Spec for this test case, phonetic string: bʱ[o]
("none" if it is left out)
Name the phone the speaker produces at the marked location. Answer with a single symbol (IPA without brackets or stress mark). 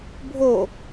o